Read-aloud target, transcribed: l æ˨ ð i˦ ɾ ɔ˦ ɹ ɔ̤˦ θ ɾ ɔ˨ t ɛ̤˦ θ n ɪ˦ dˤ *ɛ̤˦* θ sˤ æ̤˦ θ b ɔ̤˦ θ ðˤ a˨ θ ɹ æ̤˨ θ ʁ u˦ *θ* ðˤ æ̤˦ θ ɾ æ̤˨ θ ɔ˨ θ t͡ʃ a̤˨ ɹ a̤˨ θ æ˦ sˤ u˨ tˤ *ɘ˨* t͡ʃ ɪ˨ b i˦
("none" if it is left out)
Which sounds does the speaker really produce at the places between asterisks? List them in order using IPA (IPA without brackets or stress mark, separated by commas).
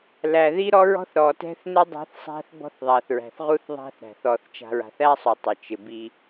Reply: ɛ̤˦, θ, ɘ˨